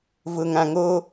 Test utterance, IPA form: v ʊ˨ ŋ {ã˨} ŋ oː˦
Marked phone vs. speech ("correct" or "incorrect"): correct